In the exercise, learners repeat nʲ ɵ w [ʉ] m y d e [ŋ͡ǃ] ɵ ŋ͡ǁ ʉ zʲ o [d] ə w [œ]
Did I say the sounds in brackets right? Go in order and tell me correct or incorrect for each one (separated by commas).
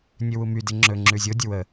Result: incorrect, incorrect, incorrect, incorrect